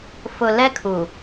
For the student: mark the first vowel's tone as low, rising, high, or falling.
low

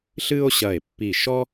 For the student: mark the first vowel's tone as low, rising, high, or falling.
high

